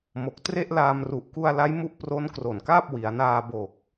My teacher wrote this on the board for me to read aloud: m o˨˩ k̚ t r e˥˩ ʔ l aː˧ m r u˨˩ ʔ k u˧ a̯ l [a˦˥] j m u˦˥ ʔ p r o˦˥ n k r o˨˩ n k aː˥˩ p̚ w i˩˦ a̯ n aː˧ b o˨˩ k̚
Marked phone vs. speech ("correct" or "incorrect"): correct